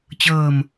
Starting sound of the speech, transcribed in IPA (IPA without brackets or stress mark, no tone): t͡ɕ